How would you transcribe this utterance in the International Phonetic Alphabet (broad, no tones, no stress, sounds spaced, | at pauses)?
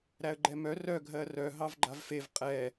ɾ æ ə̯ ɡ͡ǃ ɛ m œ r œ ɡʱ ɜ r œ ɦ ɑ v ɡ͡ǃ a v f e v qʼ ɛ